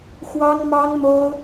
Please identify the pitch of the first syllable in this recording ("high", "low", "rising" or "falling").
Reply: high